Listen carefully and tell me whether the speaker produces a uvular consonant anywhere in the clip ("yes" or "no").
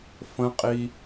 yes